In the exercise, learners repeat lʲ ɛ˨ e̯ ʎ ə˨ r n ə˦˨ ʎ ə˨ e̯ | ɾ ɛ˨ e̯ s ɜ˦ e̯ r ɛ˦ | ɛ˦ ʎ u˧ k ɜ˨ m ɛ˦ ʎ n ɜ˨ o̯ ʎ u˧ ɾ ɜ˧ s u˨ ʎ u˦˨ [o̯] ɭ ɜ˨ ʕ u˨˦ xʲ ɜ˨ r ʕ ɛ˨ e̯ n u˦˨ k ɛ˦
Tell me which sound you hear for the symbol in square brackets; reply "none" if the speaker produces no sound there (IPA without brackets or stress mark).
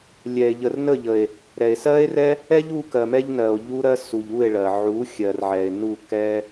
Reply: e̯